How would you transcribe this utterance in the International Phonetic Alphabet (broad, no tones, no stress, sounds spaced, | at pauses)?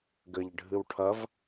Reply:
ɡ ɘ ʎ ɖʱ ɨ w ʈʰ ɐ v